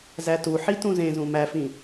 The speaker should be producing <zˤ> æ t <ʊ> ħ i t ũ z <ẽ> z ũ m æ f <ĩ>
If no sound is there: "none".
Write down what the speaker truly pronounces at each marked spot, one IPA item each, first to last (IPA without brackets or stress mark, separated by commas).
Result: z, u, ẽ, ĩ